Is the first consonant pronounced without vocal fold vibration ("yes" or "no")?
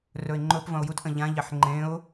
no